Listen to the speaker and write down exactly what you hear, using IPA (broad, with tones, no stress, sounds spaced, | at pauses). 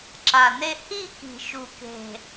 ǁ a˨˩ n e˥˧ h i˥˧ k i̤˨˩ ʃ u˨˩ k e̤˨˩